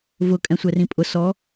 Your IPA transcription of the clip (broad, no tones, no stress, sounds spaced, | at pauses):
v ʊ kʼ ɛ̃ sʷ ɛ r ĩ pʼ ʊ s ɔ